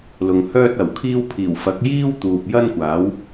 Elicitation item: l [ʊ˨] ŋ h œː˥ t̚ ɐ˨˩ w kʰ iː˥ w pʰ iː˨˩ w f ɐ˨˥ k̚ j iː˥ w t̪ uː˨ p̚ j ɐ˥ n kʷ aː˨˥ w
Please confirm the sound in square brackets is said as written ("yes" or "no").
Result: yes